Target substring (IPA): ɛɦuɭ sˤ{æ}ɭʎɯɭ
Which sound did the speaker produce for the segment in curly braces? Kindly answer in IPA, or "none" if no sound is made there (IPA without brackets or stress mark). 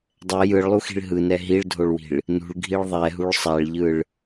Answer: a